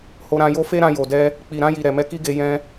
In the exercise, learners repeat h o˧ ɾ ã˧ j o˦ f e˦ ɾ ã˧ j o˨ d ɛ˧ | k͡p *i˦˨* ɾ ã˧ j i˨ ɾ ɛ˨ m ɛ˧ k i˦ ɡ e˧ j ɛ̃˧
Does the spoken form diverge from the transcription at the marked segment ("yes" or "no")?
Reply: yes